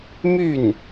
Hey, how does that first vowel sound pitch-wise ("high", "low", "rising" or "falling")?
falling